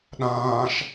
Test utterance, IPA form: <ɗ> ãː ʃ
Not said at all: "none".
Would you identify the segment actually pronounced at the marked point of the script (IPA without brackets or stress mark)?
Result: ɗ